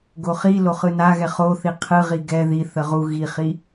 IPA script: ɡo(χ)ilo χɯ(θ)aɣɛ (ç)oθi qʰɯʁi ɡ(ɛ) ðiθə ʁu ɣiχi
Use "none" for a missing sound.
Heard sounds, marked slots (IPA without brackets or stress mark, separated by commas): χ, n, χ, ɛ